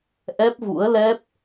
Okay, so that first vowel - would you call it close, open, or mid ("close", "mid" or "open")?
mid